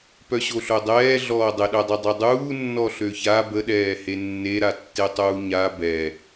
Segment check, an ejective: absent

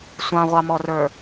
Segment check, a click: absent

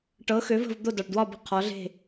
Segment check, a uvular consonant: present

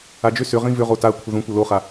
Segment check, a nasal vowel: present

